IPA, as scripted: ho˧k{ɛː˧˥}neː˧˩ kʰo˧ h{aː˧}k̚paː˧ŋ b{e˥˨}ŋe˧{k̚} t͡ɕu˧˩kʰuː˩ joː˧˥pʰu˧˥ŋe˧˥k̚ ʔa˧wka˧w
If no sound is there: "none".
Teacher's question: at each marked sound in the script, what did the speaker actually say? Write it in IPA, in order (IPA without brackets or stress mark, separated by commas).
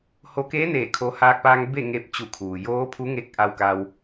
eː˧˥, aː˧, e˥˨, p̚